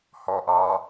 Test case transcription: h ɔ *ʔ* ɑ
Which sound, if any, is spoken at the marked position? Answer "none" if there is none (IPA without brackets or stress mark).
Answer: ʔ